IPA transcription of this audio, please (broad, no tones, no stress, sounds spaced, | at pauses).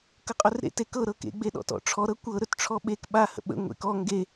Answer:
k ə qʼ ɵ r ɾ ḛ t e k ɤ ɾ ɤ k ḛ ɡ͡b e ɗ ɔ̰ t ɔ̰ ʈ͡ʂʰ ɔ ɾ ɤ kʷ ɤ ɾ ɵ t ʈ͡ʂʰ ɔ ɓ e k ɓ a h ə̰ ɓ ə̰ ŋʷ ḛ k ɔ ŋ ɡ e